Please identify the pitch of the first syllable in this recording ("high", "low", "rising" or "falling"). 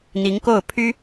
rising